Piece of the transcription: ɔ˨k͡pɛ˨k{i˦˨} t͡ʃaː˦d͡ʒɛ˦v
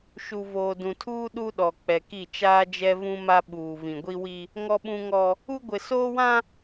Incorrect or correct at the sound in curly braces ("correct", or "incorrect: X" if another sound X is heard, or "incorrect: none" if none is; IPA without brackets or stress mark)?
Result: correct